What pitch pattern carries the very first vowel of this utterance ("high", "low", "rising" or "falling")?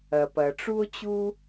low